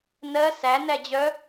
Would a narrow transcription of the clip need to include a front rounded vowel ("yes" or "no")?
yes